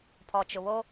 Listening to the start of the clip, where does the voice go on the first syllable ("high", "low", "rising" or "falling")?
low